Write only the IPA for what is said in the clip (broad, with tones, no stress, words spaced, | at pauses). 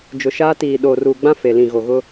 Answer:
d͡ʒʊ˨ʃaː˦ tiː˨ ɗoː˨ruː˨ɡ͡bã˦ fe˨lĩ˨ɣo˨ɣʊ˦